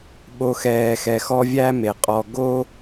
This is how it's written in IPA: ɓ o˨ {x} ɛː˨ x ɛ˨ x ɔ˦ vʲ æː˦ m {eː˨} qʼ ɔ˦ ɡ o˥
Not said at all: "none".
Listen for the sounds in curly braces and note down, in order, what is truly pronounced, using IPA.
x, e˨

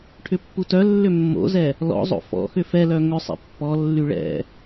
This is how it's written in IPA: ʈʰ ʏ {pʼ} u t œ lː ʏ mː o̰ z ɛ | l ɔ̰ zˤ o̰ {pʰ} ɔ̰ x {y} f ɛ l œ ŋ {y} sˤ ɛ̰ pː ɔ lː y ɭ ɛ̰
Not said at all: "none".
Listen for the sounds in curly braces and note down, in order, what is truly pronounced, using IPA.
pː, f, ʏ, ʏ

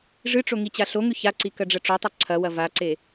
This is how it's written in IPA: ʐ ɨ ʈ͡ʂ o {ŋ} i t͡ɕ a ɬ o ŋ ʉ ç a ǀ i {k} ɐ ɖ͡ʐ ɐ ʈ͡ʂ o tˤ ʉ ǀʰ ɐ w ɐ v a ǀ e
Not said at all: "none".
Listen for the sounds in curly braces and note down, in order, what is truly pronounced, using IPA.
ŋ, k

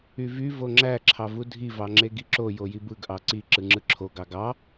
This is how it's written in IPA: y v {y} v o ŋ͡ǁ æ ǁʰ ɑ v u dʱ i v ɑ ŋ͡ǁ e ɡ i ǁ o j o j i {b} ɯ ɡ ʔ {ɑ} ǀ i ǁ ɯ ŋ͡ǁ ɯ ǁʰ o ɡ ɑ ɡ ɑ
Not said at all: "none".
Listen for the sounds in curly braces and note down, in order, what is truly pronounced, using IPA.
y, b, ɑ

